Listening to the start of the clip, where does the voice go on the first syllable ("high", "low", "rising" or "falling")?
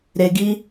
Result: high